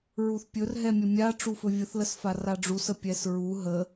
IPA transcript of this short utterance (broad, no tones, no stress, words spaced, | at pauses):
ɹuθpʲɵrɦɛ mʲəmʲa ʈ͡ʂufɵvʲəθləs faraɖ͡ʐusə pʲɛsɹu ɦə